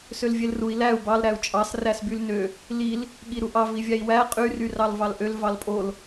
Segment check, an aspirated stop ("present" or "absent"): absent